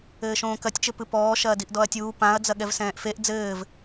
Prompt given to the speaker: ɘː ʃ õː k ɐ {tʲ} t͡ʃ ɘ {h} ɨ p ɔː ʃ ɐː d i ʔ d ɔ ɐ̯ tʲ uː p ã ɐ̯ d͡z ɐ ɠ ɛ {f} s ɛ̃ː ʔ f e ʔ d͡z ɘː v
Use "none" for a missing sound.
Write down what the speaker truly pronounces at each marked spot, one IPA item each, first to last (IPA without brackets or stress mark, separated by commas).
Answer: tʲ, p, v